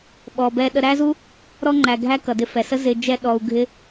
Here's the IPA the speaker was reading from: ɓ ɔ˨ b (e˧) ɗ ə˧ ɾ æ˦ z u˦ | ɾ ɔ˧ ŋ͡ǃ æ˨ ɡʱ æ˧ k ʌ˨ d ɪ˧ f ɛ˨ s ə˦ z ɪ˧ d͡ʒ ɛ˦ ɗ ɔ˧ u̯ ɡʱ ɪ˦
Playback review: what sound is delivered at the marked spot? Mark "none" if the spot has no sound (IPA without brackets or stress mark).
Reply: ɛ˧